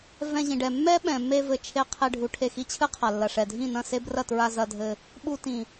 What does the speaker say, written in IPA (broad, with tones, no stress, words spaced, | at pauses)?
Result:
vɛ̃˧ʑĩ˨ɖɛ˨ mːɛ˦ɓɛ̃˨mːe˧ vɘ˧t͡ʃʰe˧ qʰe˧ ɖʱu˨ʈʰe˧xi˧t͡ɕʰɨ˦ qʰa˨lːɐ˨ʂɛ˨ dʱĩ˦˨nɐ̃˦˨se˦ brɐ˦˨tɹa˧zɐ˧dʱɘ˧ | ɓu˧tĩ˨